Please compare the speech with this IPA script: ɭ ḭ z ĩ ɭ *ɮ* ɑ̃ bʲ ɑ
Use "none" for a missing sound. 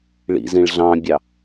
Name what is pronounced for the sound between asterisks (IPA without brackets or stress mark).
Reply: ɮ